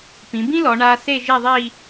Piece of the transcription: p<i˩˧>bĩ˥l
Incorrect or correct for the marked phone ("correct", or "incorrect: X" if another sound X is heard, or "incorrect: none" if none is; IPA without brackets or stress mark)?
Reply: incorrect: ĩ˩˧